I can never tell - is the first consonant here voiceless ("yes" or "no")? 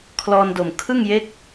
yes